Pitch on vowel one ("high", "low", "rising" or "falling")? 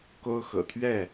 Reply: high